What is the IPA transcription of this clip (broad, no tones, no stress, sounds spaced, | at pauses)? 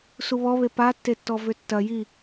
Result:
s u β ɔ β e p a tː e tː ɔ v ʏ tː ɐ j i